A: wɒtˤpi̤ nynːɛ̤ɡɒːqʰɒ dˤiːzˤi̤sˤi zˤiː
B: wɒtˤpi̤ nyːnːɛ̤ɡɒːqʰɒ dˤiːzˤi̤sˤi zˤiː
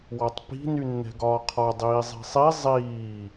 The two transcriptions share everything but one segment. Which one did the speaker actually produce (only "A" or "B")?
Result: A